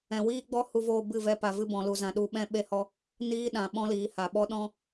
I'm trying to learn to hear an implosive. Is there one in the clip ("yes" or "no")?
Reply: yes